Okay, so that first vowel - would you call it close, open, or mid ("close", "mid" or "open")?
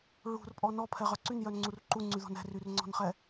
close